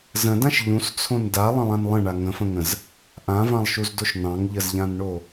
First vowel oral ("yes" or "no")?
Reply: no